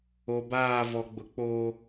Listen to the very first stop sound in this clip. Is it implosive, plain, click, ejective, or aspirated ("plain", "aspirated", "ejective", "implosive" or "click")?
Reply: plain